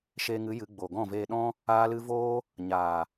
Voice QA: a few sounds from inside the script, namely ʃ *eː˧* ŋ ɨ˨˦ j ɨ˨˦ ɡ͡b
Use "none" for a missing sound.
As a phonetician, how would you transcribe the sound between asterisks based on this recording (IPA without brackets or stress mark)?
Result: eː˧